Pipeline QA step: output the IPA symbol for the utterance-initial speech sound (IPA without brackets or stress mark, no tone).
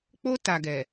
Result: k͡p